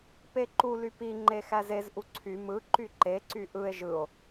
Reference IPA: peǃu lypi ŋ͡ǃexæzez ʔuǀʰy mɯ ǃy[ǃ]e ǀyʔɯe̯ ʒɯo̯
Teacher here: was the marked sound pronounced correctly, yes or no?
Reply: yes